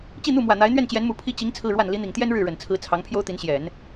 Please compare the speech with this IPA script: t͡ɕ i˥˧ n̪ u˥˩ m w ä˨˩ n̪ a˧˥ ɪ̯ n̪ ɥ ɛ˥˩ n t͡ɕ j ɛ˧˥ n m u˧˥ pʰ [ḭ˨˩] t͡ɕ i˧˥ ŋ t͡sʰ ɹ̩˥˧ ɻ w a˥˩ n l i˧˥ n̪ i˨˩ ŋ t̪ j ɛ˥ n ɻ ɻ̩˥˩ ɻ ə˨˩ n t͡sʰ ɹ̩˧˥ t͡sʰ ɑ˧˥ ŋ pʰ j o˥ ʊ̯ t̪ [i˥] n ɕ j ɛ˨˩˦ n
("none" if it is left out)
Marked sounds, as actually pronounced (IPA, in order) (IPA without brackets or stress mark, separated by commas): i˥, i˧˥